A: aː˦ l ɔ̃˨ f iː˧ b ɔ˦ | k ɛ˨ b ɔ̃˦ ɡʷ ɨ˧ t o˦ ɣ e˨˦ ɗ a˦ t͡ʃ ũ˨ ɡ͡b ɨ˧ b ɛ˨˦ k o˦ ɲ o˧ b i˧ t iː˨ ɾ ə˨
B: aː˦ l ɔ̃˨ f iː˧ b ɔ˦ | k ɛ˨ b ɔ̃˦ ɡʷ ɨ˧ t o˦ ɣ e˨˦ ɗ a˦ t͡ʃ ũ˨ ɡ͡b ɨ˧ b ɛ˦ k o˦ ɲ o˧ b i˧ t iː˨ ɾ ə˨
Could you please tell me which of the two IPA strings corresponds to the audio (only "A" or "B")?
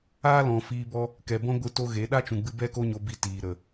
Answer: B